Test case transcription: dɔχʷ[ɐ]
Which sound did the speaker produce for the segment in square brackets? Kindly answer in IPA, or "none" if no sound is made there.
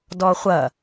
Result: ɐ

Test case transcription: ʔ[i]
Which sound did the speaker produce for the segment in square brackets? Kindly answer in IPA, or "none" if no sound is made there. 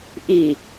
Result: i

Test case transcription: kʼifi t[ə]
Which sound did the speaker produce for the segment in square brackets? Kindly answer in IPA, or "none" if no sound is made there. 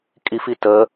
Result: ə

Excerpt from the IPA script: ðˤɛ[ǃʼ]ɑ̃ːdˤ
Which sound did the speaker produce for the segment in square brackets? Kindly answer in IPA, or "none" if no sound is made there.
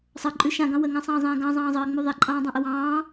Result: ǃʼ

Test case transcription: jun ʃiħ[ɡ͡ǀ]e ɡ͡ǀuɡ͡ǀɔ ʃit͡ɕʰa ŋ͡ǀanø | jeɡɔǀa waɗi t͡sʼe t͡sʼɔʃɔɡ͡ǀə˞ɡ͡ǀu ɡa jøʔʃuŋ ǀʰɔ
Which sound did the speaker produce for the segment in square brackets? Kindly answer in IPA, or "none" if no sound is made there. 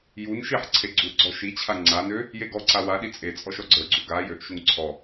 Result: ǀʰ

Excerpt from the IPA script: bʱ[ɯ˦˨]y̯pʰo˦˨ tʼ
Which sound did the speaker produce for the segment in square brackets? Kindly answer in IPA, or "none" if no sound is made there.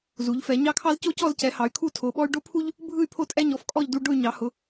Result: ɯ˦˨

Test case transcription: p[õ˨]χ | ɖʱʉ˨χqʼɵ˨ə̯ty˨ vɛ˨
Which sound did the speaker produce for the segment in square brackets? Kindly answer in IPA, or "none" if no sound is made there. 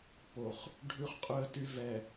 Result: o˨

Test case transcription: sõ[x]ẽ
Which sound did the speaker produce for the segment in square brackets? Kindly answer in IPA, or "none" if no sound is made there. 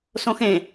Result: x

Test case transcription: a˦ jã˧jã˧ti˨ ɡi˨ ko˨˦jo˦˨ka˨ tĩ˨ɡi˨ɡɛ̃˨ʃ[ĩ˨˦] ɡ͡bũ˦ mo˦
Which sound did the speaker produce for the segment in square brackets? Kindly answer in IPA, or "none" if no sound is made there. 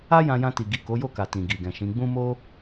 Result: ĩ˨˦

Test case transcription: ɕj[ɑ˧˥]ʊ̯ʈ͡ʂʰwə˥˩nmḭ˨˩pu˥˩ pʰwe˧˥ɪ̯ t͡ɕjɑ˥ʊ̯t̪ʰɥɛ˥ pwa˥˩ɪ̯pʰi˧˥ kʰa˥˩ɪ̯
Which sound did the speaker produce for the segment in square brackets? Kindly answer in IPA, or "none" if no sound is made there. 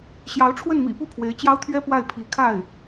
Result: ɑ˧˥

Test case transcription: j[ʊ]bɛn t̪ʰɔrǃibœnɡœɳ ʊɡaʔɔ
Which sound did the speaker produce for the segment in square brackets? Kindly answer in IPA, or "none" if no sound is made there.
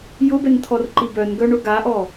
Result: ʊ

